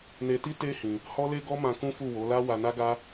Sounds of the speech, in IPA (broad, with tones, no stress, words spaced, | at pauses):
ne˧ti˦ te˦ hĩ˧ | hɔ˦le˦ɡɔ˦mã˧ kũ˦fu˦˨wo˨˦la˦ wa˧na˦ɡa˦